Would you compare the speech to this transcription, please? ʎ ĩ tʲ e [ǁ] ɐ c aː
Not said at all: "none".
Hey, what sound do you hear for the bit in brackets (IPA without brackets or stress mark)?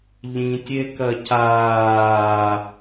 k